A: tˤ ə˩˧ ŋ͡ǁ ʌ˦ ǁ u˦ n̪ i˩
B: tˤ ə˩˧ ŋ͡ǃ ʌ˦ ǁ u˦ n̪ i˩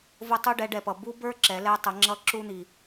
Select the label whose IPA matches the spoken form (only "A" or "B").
A